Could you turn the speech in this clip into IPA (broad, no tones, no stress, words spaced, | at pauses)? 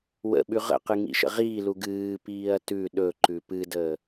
wə̰ɓʉ ʁə̰qɨ ŋḭʃə̰ʁiːlu ɡɨːpiːɐ̯ tʉ ɗɵ ǃʉpɨdəː